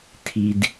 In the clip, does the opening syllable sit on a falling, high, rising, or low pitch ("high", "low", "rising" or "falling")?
low